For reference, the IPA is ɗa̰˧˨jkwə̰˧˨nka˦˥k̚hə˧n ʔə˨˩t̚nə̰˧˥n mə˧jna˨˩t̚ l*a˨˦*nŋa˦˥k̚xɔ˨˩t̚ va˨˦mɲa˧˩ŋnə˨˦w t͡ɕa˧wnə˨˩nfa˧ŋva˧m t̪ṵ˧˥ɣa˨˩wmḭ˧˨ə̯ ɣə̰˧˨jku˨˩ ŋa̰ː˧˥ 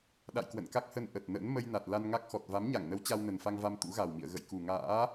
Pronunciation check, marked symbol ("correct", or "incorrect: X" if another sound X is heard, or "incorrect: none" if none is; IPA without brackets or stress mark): incorrect: a˧